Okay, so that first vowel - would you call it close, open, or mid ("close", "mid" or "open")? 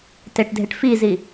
mid